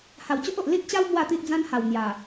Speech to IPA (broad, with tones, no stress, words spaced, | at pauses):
ha˨˩wt͡ɕo˦ʔo˨ʔ li˦t̚t͡ɕa˦w mwa˥˧t̪i˦ʔd͡zã˦nha˨˩w n̪ja˨˩